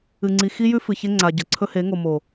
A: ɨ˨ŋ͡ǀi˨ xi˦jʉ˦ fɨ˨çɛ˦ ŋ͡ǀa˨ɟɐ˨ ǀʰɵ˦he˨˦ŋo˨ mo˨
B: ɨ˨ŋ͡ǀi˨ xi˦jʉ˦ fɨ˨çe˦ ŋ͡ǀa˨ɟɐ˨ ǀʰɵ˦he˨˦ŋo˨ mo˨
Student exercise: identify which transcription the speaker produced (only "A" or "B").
B